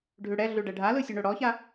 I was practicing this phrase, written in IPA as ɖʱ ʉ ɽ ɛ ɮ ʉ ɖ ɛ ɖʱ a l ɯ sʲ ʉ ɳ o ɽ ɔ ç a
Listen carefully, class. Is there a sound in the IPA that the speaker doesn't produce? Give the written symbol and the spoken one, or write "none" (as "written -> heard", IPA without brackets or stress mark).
none